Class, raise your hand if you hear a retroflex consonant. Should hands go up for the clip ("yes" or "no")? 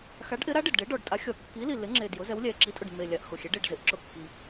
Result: yes